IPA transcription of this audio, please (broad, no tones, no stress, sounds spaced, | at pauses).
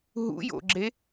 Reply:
ɦ ṵ j o̰ ɡ͡ǁ e